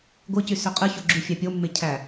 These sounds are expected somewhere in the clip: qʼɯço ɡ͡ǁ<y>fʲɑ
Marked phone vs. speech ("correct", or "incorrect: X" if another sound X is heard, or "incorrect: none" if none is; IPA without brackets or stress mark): correct